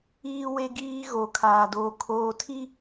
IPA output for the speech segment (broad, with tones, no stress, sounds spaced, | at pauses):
iː˦ w e˦ ɡ iː˦ ɣ o˨ kʰ aː˨ d oː˨ kʰ oː˨ tʰ i˦